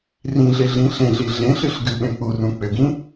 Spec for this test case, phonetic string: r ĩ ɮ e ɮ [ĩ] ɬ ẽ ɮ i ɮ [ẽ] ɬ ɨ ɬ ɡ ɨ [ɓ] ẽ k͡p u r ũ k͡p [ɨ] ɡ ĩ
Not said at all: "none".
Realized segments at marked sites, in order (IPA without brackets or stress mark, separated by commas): ĩ, ẽ, ɓ, ʏ